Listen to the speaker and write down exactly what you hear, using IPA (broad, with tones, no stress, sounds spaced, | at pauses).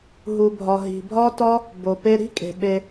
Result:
ɦ u˨ bʱ ɒ˨ ɦ i̤˨ bʱ ɒ˦ t ɒ˦ | b o˨ p e˦ ɾ i̤˦ kʼ e̤˨ ɓ e˧